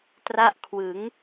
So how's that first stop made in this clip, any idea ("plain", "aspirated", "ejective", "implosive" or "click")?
plain